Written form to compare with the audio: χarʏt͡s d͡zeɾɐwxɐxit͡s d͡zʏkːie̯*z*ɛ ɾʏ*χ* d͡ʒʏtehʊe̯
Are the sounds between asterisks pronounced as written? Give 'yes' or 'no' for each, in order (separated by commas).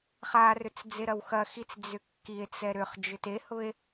no, yes